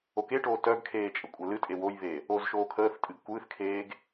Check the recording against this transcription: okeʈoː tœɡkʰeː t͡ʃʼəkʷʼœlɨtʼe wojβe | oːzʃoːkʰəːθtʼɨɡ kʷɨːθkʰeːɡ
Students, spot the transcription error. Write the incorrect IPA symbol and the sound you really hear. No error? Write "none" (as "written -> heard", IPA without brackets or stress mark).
none